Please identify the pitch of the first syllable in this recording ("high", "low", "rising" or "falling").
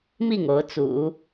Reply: falling